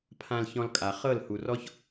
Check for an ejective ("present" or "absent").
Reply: present